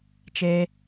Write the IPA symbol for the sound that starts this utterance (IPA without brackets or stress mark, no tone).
t͡ʃ